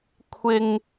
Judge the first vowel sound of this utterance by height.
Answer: high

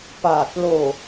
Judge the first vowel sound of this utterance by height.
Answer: low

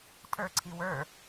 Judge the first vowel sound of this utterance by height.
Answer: mid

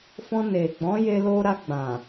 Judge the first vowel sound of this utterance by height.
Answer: mid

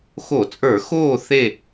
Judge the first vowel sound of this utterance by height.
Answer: mid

